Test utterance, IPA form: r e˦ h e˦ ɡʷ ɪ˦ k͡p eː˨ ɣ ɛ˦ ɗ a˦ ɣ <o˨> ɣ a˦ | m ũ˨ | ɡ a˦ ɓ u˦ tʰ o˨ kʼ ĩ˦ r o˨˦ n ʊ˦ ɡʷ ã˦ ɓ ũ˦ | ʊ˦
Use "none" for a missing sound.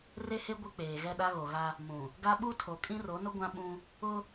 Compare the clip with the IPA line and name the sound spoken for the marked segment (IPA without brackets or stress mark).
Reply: o˨